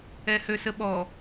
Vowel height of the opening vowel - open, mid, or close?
mid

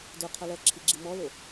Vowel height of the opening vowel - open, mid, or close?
mid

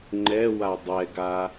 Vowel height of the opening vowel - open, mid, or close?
mid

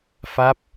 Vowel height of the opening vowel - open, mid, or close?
open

